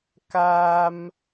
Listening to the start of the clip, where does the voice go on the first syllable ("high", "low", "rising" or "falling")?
high